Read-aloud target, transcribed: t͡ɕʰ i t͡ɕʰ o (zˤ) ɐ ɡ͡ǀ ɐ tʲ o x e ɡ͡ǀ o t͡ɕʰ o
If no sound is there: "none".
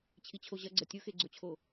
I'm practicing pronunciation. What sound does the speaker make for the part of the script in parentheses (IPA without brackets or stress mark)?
ʑ